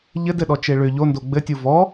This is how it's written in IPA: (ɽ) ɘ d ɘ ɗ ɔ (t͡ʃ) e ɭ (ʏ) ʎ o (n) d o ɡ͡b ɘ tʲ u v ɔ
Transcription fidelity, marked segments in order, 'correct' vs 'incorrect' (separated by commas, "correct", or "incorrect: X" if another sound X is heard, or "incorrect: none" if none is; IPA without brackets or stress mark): incorrect: ʎ, correct, correct, correct